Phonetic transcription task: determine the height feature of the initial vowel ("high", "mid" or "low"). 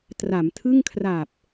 low